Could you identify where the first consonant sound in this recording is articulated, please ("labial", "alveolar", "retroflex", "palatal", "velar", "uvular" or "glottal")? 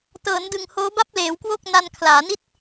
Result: alveolar